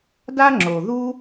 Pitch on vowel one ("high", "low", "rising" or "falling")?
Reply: high